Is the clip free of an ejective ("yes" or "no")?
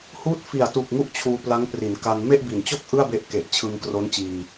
yes